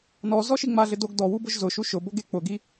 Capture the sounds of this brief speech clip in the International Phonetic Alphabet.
n ɔ z ɔ ʃ i ŋ͡m a ɮ ɪ d o ɡ d ɔ w u b ʊ ʒ z ʊ ʃ u ʃ ʊ b o ɡ e k͡p ʊ ɡ i

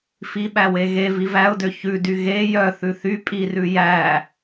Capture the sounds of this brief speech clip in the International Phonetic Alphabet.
f i ɓ æ w e ɣ e v i v æ ʊ̯ d ø ç ʉ d y ɣ e j œ θ ʉ θ y pʼ i r ʉ j æ

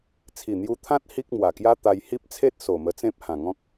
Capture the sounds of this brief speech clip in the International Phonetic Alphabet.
t͡sʰ i˨˩ n̪ j u˧ t̪ʰ ã˦ t̚ h i˦ k̚ m w a˨˩ k j a˦ t̪ a˧ j h i˦ p̚ t͡sʰ e˦ t̚ s o˨˩ m ə˧ t͡s ẽ˦ p̚ h ã˨˩ ŋ ɔ̃˦ k̚

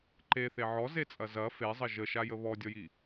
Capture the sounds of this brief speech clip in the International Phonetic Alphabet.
ǃ e θ e ʕ ɔ z e t͡sʼ ɐ z ɐ f e zˤ ə ʒ ə ʃ a j ə β ɔ dʲ ɔ j i

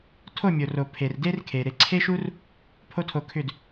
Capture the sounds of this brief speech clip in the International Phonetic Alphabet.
tʰ o˦˨ mʲ o˨ r o˨ pʰ e˨ r d e˦ r kʰ e˨ ɾ e˧ ǀʰ e˦ ʃ u˦ r | pʰ o˦ tʰ o˧ kʰ ʏ˦˨ d

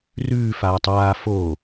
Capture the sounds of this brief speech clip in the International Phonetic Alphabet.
r ʉː f aː tˤ aː f o

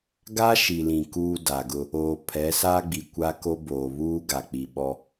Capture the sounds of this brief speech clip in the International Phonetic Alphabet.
ɡ a˦ ʃ i˨ l ĩ˨ k uː˦ d a˨ ɡ ʊ˦ | oː˨ pʰ ɛ˨˦ s a˦ ɡ͡b i˨ kʷ a˦ k o˦ b oː˨ β uː˦ ɡ a˨ k͡p i˨ ɓ ɔ˦

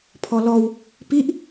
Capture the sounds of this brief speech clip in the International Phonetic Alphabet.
pʰ ɔ l ɔ w | p i ʔ

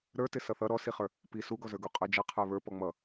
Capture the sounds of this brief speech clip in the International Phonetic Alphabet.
ɾ ə˞ t ɪ s ʌ θ ʌ ɾ ɔ s i χ ə˞ | p i s u ɡ ɔ z ə˞ ɡ u qʼ ə˞ d͡ʒ ʌ qʰ ə˞ β ə˞ p ɔ ŋ͡m ʌ

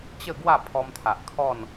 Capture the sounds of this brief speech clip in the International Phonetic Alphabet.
t͡ɕ ə˥˧ ɡ w a˥˧ pʰ ɔ˧ m t̪ʰ a˨ ʔ kʰ ɔ˥˧ n

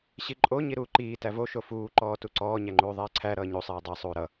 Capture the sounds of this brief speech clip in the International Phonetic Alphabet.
ɕ i ǃʼ o ɲ i ɾ uː ǃ iː t æ v o ʃ o f uː ǃ ɔː t u ǀ ɔː ɲ æ ŋ͡ǃ uː ðˤ ɛː ǀʰ æ ɾ ʌː ɲ u sˤ iː dˤ ɛ sˤ uː ɾ ʌ

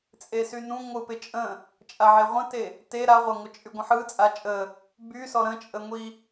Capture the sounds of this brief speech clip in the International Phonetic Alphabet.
t͡sʼ e s y n ũ ŋʷ ɯ p ɪ t͡ʃʼ ə̃ | t͡ʃʼ a ʕ e ʁʷ ə̃ t e | t e ɾ a ʁʷ a ŋʷ ə t͡ʃʼ y ɡʷ ə̃ ħ ɯ t͡sʼ a t͡ʃʼ ə | b y s ɔ ɾ ə̃ t͡ʃʼ ə ŋʷ i

